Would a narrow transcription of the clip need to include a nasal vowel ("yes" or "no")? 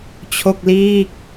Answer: no